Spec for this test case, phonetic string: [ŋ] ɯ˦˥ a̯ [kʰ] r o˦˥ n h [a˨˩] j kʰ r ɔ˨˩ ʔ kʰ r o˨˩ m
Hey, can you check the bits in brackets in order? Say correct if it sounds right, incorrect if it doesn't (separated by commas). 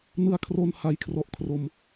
incorrect, correct, correct